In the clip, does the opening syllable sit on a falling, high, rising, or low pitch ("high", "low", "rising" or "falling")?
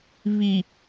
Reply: low